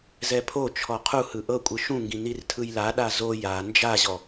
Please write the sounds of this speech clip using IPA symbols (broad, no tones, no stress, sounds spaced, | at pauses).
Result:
z ɛ pʰ o t͡ʃʰ ɔ qʰ u h ɯ ʔ ɤ kʷʼ ɯ ʃ ũ ŋ ɡ ĩ n i r tʰ ɯ j l a ɗ a z o j a n d͡ʒ a ʑ ɔ